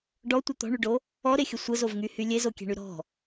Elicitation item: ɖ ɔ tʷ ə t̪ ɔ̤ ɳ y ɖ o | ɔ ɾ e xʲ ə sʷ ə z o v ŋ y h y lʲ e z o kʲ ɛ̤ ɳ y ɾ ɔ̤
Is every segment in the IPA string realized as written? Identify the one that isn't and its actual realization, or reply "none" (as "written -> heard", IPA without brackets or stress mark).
none